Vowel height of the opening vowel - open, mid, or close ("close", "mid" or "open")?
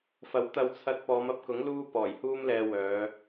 open